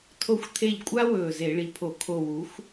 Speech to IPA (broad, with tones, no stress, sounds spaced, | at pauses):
tʰ o˧˩ xʷ t̪ʰ e˧˩ ʎ kʷʼ a˦ w ɵː˧˩ z e˧˩˧ ɭ i˩˥ pʰ o˧˩˧ kʰ o˧˩ w u˩˥ xʷ